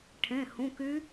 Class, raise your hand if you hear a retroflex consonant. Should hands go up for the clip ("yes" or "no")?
yes